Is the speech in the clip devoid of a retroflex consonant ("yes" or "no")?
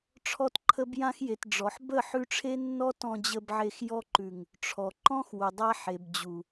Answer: no